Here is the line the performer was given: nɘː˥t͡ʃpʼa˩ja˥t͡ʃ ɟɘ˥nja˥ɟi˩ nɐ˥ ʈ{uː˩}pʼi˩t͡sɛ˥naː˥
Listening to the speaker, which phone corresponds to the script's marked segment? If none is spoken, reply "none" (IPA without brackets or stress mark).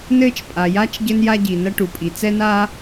u˩